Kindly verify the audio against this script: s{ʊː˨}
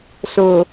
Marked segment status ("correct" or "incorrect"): correct